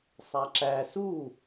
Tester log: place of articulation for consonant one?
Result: alveolar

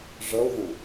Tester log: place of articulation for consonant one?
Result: retroflex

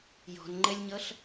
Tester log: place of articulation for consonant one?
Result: palatal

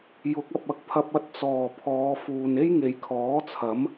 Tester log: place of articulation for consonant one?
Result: palatal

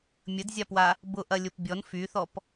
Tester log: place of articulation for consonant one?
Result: labial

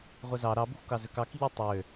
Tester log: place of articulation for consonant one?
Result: uvular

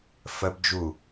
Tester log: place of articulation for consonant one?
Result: labial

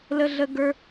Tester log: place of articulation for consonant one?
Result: alveolar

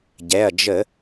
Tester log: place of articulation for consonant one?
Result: palatal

